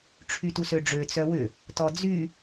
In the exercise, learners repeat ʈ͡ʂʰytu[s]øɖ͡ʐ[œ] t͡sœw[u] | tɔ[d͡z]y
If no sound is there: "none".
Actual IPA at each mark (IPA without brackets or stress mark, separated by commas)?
s, ø, ʏ, d͡z